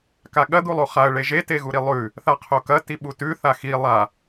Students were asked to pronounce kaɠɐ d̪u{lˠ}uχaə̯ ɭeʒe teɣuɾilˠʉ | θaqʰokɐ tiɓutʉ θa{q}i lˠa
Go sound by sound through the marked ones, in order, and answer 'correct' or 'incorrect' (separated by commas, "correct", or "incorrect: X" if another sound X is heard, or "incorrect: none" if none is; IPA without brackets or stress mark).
correct, incorrect: x